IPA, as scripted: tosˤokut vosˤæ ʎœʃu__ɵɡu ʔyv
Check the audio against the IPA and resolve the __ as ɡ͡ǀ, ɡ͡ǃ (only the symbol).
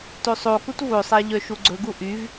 ɡ͡ǀ